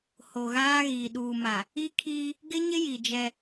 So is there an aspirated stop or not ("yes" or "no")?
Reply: yes